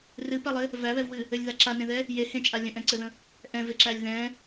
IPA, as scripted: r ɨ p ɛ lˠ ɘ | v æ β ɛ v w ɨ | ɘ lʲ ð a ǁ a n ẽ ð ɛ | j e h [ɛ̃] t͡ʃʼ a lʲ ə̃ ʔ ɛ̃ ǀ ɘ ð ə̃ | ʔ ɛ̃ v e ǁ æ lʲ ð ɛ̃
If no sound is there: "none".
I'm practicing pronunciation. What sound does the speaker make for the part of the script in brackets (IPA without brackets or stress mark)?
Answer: ẽ